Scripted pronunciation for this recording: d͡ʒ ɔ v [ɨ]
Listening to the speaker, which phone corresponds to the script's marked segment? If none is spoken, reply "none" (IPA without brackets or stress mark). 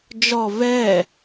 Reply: ɛ